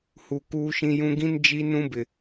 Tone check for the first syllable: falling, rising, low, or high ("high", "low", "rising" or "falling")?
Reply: low